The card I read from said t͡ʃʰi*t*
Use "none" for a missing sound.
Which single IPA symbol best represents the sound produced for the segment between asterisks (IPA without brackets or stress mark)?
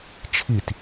t